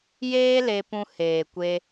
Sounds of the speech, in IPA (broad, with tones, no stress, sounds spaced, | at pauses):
j eː˦ l e˧ p ũ˧ h eː˨ kʷ e˧